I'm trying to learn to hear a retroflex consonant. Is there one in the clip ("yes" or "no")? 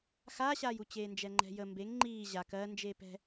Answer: no